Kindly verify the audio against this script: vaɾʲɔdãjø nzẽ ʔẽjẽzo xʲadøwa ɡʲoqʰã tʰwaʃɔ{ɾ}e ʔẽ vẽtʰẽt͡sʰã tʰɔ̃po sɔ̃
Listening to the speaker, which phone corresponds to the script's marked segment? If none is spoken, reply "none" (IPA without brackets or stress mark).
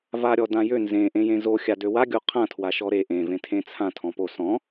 ɾ